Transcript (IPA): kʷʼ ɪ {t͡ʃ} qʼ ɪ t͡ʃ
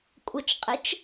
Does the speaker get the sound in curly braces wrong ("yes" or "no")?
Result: no